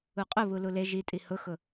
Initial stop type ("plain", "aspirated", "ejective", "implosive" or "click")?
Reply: ejective